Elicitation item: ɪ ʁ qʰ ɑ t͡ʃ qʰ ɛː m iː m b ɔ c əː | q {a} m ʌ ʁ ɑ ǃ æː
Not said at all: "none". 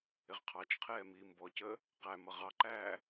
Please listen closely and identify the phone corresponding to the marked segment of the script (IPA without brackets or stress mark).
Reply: æ